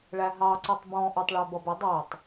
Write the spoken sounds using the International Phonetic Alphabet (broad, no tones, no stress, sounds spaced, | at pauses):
ɭ æ ɦ ɑ ǀ i tˤ b ɔ̃ ʔ ə˞ tˤ ɭ æ b ʌ b ə dˤ æ tˤ